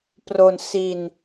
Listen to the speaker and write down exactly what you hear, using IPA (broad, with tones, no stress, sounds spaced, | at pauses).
p r o˧ n s i˧ n